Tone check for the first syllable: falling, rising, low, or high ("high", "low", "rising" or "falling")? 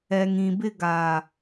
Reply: low